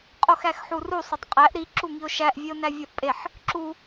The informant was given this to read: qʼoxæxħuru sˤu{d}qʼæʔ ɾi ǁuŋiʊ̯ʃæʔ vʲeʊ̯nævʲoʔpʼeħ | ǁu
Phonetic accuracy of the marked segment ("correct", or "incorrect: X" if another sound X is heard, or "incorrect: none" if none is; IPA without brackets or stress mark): incorrect: tˤ